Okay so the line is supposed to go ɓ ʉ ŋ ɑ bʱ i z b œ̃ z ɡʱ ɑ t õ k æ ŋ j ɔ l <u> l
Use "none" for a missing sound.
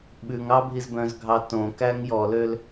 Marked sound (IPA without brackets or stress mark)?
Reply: ø